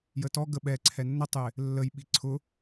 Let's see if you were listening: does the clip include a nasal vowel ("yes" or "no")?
no